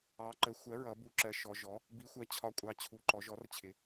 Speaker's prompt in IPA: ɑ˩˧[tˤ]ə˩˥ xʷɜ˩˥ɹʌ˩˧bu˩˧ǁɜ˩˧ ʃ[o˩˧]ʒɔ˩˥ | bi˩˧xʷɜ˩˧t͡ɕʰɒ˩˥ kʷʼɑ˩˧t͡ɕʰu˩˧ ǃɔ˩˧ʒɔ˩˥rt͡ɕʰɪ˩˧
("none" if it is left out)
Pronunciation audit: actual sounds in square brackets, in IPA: ǃ, ɔ˩˧

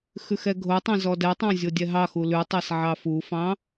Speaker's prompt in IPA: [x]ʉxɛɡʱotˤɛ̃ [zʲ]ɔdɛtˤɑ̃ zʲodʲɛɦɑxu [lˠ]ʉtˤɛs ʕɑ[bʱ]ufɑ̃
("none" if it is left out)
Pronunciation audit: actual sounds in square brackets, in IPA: x, z, l, f

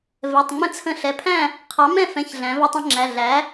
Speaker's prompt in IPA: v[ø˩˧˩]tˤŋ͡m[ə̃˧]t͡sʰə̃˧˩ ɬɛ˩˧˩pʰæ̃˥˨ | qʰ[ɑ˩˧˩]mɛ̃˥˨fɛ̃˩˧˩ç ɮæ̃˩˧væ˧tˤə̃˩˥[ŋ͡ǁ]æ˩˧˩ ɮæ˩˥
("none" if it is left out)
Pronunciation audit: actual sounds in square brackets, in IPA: ɛ˩˧˩, ə̃˧, ɑ˩˥, ŋ͡ǁ

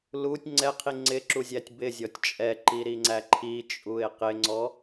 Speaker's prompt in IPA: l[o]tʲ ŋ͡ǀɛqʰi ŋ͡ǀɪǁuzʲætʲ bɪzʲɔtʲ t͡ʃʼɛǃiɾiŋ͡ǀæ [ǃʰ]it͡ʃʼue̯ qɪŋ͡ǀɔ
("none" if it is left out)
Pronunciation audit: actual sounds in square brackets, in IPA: u, ǃʰ

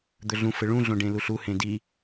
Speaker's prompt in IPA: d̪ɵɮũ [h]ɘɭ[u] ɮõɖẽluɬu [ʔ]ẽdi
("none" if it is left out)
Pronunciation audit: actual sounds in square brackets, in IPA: f, ũ, h

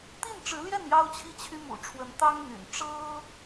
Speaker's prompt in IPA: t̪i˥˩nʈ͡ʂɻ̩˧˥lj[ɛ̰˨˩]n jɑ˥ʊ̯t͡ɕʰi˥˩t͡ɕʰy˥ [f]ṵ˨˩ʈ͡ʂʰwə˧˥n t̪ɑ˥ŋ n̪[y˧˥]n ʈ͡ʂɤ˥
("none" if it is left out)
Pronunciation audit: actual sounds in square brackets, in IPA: ɛ˥˩, m, y̰˨˩

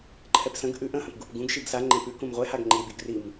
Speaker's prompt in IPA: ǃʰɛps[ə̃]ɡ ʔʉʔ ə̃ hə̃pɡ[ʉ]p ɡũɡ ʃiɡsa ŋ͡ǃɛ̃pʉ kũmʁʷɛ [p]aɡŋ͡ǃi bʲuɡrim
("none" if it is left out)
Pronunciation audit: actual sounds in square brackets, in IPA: ə̃, u, h

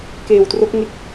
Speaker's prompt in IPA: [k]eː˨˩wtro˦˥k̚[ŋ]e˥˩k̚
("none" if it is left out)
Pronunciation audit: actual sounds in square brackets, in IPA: k, ŋ

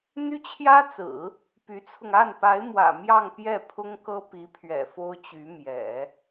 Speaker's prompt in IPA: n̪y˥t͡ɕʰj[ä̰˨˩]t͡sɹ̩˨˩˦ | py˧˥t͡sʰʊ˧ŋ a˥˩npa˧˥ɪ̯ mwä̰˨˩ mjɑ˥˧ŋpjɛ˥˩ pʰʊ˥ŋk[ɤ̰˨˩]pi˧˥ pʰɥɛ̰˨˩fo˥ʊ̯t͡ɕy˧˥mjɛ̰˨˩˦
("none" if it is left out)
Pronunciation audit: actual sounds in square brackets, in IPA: ä˥, ɤ˥

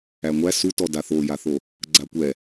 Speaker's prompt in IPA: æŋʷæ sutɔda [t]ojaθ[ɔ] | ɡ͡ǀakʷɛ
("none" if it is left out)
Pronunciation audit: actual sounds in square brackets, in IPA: θ, o

